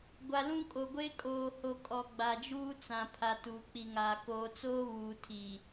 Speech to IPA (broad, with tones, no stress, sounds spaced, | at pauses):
ɡʷ a˨ l ũ˦ kʼ o˨ ɡʷ e˦ kʼ oː˨ h o˨ kʼ ɔ˨ ɡ͡b a˨ d͡ʒ uː˦ t͡s ã˨ pʰ a˨ t uː˨ k͡p i˨ ŋ aː˨ k oː˨ t͡s oː˦ β uː˨ tʰ i˨